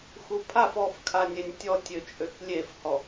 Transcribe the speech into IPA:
x u pʰ a f ɔ f kʰ a nʲ e nʲ tʲ ɔ tʲ ø t͡ʃʼ ø k lʲ e f h ɔ

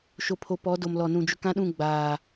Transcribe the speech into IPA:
ʃ o˨ pʰ o˨ p ɔ˨˦ d o˨ m l ɔ˨ n ũ˨ d͡ʒ ʊ˨ k ã˦ ɗ ũ˦˨ ɡ͡b aː˨

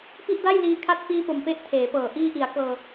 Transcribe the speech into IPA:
p i˥˩ ʔ d a˥˩ j l iː˧ kʰ a˦˥ t̚ f iː˧ p o˨˩ m p e˦˥ ʔ tʰ eː˩˦ p ɤː˨˩ ʔ iː˧ ʔ i˩˦ a̯ k ɤː˧

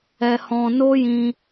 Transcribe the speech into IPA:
ɛ˧ h ɔ̃˧ n o˦ j ĩ˧

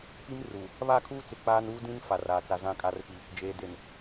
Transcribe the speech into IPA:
p i˦ m r uː˨ | β a˦˨ kʰ uː˦ t͡s ɪ˨ k͡p aː˦ n uː˦ d ĩ˦ n f a˨ r aː˨ t͡s a˨ z ã˨ kʼ a˨ r p i˨ | d͡ʒ eː˨ d e˨ n

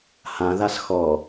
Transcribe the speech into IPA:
h ã ð a s x ɔ

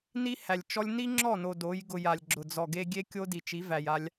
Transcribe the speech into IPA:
n i˦ h æ˨ lʲ t͡ʃ ɔ˦ lʲ n i˦ ŋ͡ǁ ɔ˦˨ n o˨ d o˨˦ j ɡ ʊ˧ j a˨ lʲ ɡ͡ǁ ʊ˨ d͡z ɔ˨ ɡ e˧ ɡʲ e˦ kʲ o˦ d i˨ t͡ʃ i˨˦ v æ˨ j a˧ lʲ

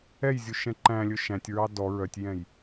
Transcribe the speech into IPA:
ɛ j zʲ u ʃ ɛ̃ ǃ æ̃ lʲ ɵ ʃ æ̃ tʲ ɹ ɑ d ɔ ɹ œ tʲ j ɛ̃ j

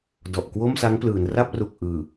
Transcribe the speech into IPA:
d ɔ˨˩ ʔ k w o˥˩ m s a˦˥ ŋ p l ɯː˩˦ n r a˥˩ p̚ r u˨˩ k̚ ʔ ɯː˨˩

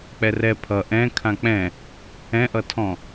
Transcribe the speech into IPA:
k͡p ɛ r ɛ pʰ ʌ ʔ ɛ̃ kʰ ã k͡p ɛ̃ | ɛ̃ ʔ ʌ tʰ ɔ̃

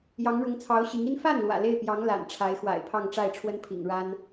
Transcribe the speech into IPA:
j ɑ˧˥ ŋ ɻ ʊ˧˥ ŋ t͡sʰ ɑ˧˥ ʊ̯ ɕ i˧˥ ŋ i˥ n f a˥˩ n l w ä̰˨˩ l e˥˩ ɪ̯ p j ɑ˧˥ ŋ l a̰˨˩ n ʈ͡ʂʰ a˧˥ ɪ̯ x w a̰˨˩ ɪ̯ pʰ ɑ˥˧ ŋ ʈ͡ʂ a˥˩ ɪ̯ ʈ͡ʂʰ w ə˥ n pʰ ḭ˨˩ ŋ ɻ a˥ n

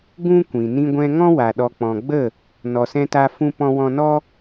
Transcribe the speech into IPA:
ɡ ũ˦ kʷ ĩ˨ n ĩ˧ ɡʷ ɛ̃˧ ŋ ɔ̃˦ w a˨ ɗ ɔ˨ k͡p ɔ̃˨ ɡ͡b ə˦˨ | n ɔ˨ s ɛ̃˧ t a˧ f ũ˧ p ɔ̃˧ w ɔ̃˧ n ɔ˦

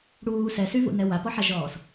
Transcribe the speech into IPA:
ɽ uː s ɛ s y v ṵ n ɛ w a p ɔ ħ a ʒ ɔː s

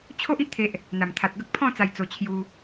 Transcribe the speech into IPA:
t͡ɕʰ o˦ ʔ i˦ ʔ t̪ʰ e˦ ʔ | n̪ a˨˩ m t̪ʰ a˨ t̚ ɡ ə˦ k̚ pʰ ɔ̃˥˧ t͡s a˧ j t͡s o˧ t͡ɕʰ j u˧

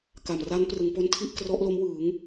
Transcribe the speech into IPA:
k a˨˩ m r a˦˥ n p r ɯ˩˦ ŋ p o˦˥ n tʰ i˥˩ ʔ k r ɔ˦˥ ʔ l o˦˥ m w ɯː˩˦ ŋ

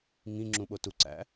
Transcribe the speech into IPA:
ŋ ĩ ŋ͡ǁ ũ ɓ o t u ǀ æ̰

